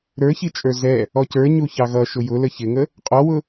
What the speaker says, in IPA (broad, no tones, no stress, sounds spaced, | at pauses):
ɾ ə˞ ç i t͡ʃʼ ə˞ z ɛ | ɔ c ə˞ ɲ u ç ɑ ɣ ʌ ʃ ʊ j ʊ l ə ç ɪ ŋ ə | qʼ ɔ w ʊ